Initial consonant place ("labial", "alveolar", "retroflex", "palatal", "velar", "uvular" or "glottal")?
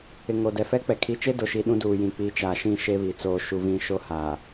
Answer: velar